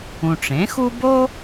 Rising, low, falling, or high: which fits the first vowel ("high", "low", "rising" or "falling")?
low